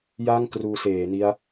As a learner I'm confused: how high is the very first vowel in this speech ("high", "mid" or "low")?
low